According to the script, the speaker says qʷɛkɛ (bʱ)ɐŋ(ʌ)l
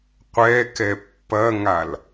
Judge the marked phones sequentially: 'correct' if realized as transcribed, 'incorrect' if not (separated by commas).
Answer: incorrect, incorrect